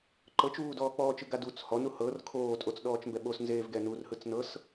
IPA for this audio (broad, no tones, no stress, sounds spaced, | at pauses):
ǃ ɤ t͡ʃ uː d ɔː k͡p ɔː t͡ʃ ɯ ɡ a d u t͡s h ɔ n u h ɤ r kʰ oː tʼ o t͡s ɗ ɔː t͡ʃ m b ɛ ɓ o s n z eː v ɡ ɛ n u r h ɯ t͡s n ɤ s